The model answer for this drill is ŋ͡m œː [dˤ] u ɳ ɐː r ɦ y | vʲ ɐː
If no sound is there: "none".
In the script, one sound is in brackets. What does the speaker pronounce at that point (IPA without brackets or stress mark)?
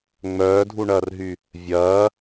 dʱ